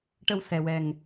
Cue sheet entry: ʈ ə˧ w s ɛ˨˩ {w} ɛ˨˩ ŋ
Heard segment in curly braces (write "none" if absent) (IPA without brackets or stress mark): w